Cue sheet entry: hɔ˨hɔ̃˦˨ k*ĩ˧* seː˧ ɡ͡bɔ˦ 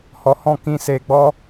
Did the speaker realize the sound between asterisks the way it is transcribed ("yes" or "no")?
yes